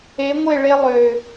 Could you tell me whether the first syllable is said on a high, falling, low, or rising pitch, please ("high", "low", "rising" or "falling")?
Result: rising